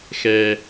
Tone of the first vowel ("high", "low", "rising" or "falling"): low